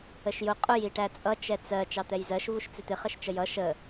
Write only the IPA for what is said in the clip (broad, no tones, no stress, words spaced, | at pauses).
əʃjʊ qʼʊj iʈæt͡sʼʌ t͡ʃɛt͡sɜ t͡ʃɑt̪ɛjzɜʃ vuʃt͡sɪt̪ɪ χəʃt͡ʃəjʌ ʃə